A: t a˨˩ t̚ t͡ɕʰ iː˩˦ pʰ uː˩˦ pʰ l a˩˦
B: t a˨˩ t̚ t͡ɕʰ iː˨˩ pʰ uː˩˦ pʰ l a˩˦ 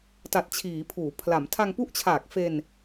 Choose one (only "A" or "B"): A